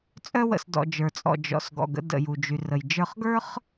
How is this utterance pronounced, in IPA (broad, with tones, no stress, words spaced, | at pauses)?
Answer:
t͡sʼœ˧wə̰˩sdɔ̰˩ d͡ʒə˞˩t͡sʼɔ̰˩ d͡ʒɔ̰˩sɡɔ̰˩ɡ ə̰˧ də̰˩ju˩d͡ʒy˩ rə˩jd͡ʒə˞˧χɡə˞˥χ